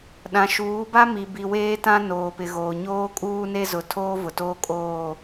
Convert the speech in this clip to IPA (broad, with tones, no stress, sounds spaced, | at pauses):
ɗ ã˨ ʃ uː˨˦ b a˦ m i˨ b i˨ w eː˦ t ã˦ n oː˨ p ɪ˨ ɣ oː˨ ɲ oː˦ kʼ uː˦ n e˦ z ʊ˨ tʰ oː˦ v ʊ˨ t oː˦ kʼ oː˦˨